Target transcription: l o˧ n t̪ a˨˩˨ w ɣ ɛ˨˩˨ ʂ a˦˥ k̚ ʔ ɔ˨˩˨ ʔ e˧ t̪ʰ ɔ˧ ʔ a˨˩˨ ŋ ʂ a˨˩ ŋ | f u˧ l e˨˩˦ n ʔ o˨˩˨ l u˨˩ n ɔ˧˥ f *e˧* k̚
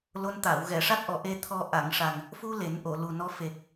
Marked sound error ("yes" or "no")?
yes